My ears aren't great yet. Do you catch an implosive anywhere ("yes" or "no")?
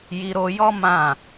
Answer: no